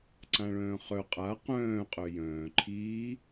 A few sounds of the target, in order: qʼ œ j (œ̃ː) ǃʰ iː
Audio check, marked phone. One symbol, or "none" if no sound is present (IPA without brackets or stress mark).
œ̃ː